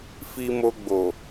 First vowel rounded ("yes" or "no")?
no